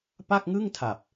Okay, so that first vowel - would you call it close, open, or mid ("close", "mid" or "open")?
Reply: open